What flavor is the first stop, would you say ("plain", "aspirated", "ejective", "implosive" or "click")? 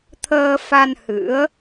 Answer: aspirated